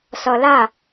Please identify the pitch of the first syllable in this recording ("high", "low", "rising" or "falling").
low